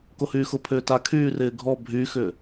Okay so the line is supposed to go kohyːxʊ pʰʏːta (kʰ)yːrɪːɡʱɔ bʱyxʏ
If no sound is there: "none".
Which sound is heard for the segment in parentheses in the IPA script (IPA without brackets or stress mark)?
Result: kʰ